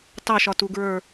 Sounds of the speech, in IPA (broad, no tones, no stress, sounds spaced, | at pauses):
t ɑ ʃ ɒ t u ɡ ɹ ə˞